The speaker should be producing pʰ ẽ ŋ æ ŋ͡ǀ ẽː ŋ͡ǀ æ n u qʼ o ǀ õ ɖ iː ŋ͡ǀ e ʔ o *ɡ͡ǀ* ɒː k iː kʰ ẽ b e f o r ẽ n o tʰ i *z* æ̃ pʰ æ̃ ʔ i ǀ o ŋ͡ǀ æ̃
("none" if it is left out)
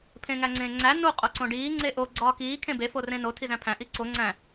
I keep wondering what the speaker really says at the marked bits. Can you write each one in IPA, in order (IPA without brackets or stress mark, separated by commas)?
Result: ɡ͡ǀ, z